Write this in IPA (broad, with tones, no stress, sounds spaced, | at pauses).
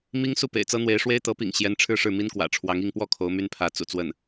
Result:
m i˥ ŋ s u˥˩ p ḛ˨˩ ɪ̯ t͡s ɤ˥ n̪ w e˧˥ ɪ̯ ʂ w e˥ ɪ̯ t̪ ɤ˧˥ p ḭ˨˩ ŋ ɕ j ɛ˧˥ n ʈ͡ʂʰ ɻ̩˥˧ ʂ ɻ̩˥˩ m i˥ n k w ä̰˨˩ ʈ͡ʂʰ w ɑ˧˥ ŋ i˥˧ ŋ p w ɔ˥˩ kʰ o˧˥ ʊ̯ m y˥ n pʰ ä˧˥ t͡s ṵ˨˩ t͡s w ə˥˩ n